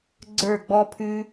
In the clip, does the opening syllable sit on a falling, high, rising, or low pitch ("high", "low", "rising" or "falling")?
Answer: falling